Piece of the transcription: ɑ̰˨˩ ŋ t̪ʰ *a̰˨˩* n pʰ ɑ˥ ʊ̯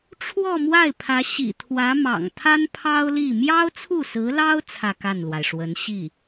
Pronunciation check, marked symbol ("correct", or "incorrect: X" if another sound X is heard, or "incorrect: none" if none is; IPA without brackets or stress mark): incorrect: a˥